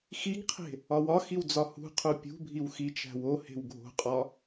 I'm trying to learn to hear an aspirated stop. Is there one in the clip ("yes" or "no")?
yes